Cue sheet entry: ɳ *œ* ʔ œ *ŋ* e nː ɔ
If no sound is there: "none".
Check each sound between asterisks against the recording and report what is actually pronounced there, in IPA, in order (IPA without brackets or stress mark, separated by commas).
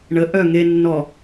ə, ŋ